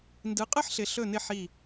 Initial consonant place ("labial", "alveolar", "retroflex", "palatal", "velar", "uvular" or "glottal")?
alveolar